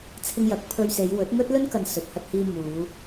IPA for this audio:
t͡sʰ ɪ˧ ŋ j ɐ˨˥ k̚ pʰ ɵ˧ ɥ s e˨˧ j w ɵ˨˥ t̚ ŋ ɵ˥ t̚ l ɵ˥ n k ɐ˨ n s ɵ˨ t̚ h ɐ˧ t̚ h iː˧ m uː˨˧

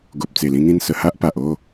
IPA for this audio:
ɡ o˨ p̚ t͡s e˨˩ l ĩ˧ ŋ ĩ˧ n s ə˨˩ h a˦ ʔ p a˨ ʔ o˥˧

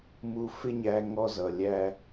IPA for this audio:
m u˧ f ɪ˦ ɲ æ˧ ŋ ɔ˦ z ʌ˨ lʲ æ˦

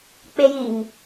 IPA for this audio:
k͡p e j i ŋ

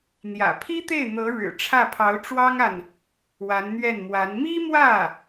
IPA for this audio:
n̪ j ä̰˨˩ pʰ i˥ t̪ e˥˩ ɪ̯ n̪ ɤ˧˥ ɻ ɻ̩˨˩ ʈ͡ʂʰ ä˥˩ pʰ ɑ˧˥ ʊ̯ ʈ͡ʂ w ɑ˥ ŋ a˨ n | w a˧˥ n n̪ ɥ ɛ˥˩ n m w a˧˥ n m i˥ m w ä˥˩

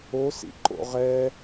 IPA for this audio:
o s ḭ ǃ o̰ ʁ ɛ

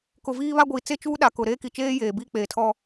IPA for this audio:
k ʊ˨ v iː˦ β a˦ ɡʷ iː˨ t͡s e˦ t͡ʃ uː˦ ɗ a˨ k ʊ˨ ɾ eː˦ k i˨ t͡ʃ eː˦ j eː˨ b iː˦ k͡p eː˨ tʰ ɔ˦

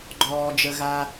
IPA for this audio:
ɡ͡ǃ ɔː˩ d͡ʒ ə˩ ɣ a˩

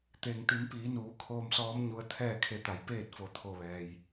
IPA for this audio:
t̪ e˩ ŋ t̪ i˩˧ m p iː˩˧ n uː˩˧ kʰ oː˧ m s ɔː˧˥ m ɲ u˧ ə̯ t̪ʰ ɛː˥˨ kʰ e˧ t̪ a˩˧ j p eː˥˨ t̚ f o˧˩ t̪ʰ o˧˩ ʋ ɛː˩ j

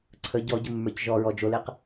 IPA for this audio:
ǀʰ ə ɟ ɔ ɟ ə mː ə˞ c ʒ ɔ ɹ ɔ d͡ʒ o l e q

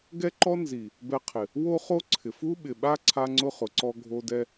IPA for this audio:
ɡ ɛ˦ ǃ ɔ˦ n z i˨ | b ɛ˧ qʰ ɪ˨ | w o˦ χ o˦ ǀʰ ɪ˨ f u˦ ɓ ɪ˨ ɓ a˦ ǀʰ a˦ ŋ͡ǀ ʊ˦ χ ʊ˨ ǀ ɔ˦ ɡʱ o˧ d ɛ˧

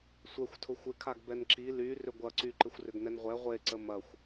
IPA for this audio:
sʷ ɛ xʷ tʰ ʊ xʷ ɪ kʰ a ɡ b ɛ n ǁ i l y r ʏ ɡʷ ɐ ǀ y ǃ ɪ xʷ r ʏ ɡ n ɛ n ʁʷ ɛ ʁʷ e ǀ ə m ɐ xʷ

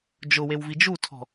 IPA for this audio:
d͡ʒ ʊ w e w v i d͡ʒ u tʰ ɔ̤

